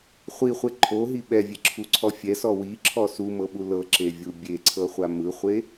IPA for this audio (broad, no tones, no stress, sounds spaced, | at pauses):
χʷ i χʷ e ǃʰ o ɦ i ɓ ɛ vʲ e ǁʰ u ǀʰ ɔ fʲ ɛ s ɔ w i ǁʰ ɔ s u m ɤ ɓ u l ɤ ǁ e vʲ u bʲ e ǀʰ ɤ χʷ a m ɯ χʷ e